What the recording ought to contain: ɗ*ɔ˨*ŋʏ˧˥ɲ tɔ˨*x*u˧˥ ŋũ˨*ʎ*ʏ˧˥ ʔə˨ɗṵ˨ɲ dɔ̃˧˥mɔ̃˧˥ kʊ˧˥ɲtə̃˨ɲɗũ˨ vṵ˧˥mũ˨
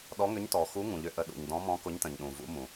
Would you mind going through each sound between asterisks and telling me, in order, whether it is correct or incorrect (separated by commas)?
incorrect, correct, correct